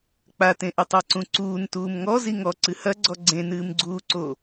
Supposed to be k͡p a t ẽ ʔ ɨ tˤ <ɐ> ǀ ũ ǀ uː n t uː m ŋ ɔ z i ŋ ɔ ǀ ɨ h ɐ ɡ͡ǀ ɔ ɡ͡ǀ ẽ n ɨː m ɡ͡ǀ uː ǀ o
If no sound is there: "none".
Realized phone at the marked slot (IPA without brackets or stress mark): a